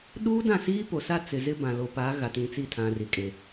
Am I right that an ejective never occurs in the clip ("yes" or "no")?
no